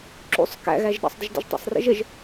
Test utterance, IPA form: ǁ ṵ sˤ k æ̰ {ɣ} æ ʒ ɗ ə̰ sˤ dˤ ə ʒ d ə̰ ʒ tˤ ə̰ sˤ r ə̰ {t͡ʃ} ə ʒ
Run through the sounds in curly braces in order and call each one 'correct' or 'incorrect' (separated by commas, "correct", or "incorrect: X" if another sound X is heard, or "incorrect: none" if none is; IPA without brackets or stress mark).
correct, incorrect: ʒ